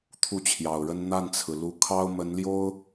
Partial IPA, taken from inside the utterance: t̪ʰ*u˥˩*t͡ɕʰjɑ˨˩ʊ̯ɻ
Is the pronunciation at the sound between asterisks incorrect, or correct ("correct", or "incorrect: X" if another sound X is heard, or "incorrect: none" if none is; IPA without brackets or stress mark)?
correct